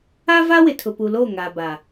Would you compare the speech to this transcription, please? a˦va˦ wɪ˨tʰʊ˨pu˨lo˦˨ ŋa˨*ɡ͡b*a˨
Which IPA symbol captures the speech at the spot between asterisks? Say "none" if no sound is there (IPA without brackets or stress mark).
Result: b